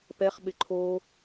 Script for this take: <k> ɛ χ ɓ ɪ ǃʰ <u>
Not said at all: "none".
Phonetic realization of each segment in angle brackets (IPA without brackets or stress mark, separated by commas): p, o